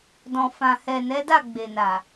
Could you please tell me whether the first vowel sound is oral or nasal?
nasal